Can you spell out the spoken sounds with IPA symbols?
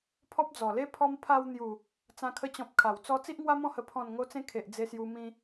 pʰɔ˦p̚d͡zɔ˨˩le˦ pʰɔ˦m pʰa˧wn̪ju˨˩ | t͡sã˧kʰə˧t͡ɕɔ̃˨p̚ kʰa˨˩wt͡sɔ˦ t͡si˦ʔŋwa˦mɔ̃˥˧hə˧ pʰɔ̃˨˩nŋo˧t͡sẽ˧ kʰe˨ʔd͡ze˧sju˧ mĩ˧

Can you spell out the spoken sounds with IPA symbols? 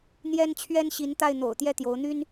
n̪jɛ˥n t͡ɕʰɥɛ˥nɕi˧˥nt̪a˥˩ɪ̯n̪o̰˨˩ʊ̯ t̪jɛ˥˩t̪jo˧˥ʊ̯n̪y˥n

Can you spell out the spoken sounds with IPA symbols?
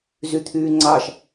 zyt̪ʰyːŋ͡ǀɑʃ

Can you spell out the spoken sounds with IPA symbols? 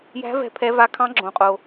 jæ̤˦˥ vɛ̤˦˥pʰɛ˦˥va˦˥ kʰɑ̃˦˥ɡ͡ǁõ˧qʼo˧

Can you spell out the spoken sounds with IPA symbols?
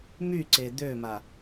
myǀe d̪øma

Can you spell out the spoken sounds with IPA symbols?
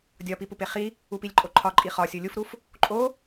dʲɒpipupe χi | upilʲǃʼoǃʰɒ ǃʼiχɒsʲo lʲufɾuf | ǃʼo

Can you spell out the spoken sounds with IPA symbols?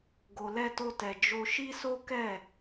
ɡo˧lɛ˦to˦tɛ˧ d͡ʒo˧ʃi˦so˦ kɛ˦˨

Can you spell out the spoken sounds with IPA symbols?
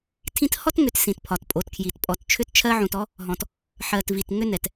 tʰĩ˦t hɔ˦tŋʏ˨˦t sĩ˨tpʰɒ˨tpʼo˨˦tkʰji˨t pʼɔ˨tt͡ʃʰʏ˦tt͡ʃʰɜ˦ʕũ˨t ɔ˦ | ɦɔ̃˨t | ħɜ˨t vi˨t ŋʏ˦nɛ˨t

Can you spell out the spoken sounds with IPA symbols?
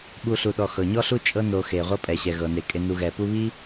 ɓu˨ɬu˩ɗɔ˩ xɤ˩ɲɔ˥ɬu˥ t͡ʃʼɤ˦no˨ xe˩ʁʷɤ˥ pʼɛ˩ɕɛ˩ ɣɤ˩ne˩kʼe˨ nu˨ ɣɛ˩pu˥ βi˥

